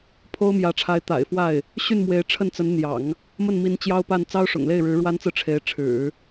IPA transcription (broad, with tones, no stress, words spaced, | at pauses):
pʰo˥ʊ̯mjä˧˥ʈ͡ʂʰa˧˥ɪ̯ t̪a̰˨˩ɪ̯ fwa˥˩ɪ̯ | ɕy˥˩nmwe˧˥ɪ̯ ʈ͡ʂʰə˥˩nt͡sə˧˥nn̪jɑ̰˨˩˦ŋ | mə˥˩nmi˧˥n t͡ɕjɑ˥ʊ̯pa˥˩n t͡sɑ˥ʊ̯ʂʊ̰˨˩ŋle˥˩ɪ̯ɻɻ̩˧˥ ɻwa˥nt͡sɹ̩˥˩ ʈ͡ʂʰe˧˥ɪ̯ʈ͡ʂʰɻ̩˨˩˦